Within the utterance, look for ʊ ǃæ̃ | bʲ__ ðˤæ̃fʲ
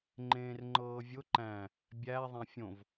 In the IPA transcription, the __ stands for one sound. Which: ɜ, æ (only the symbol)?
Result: æ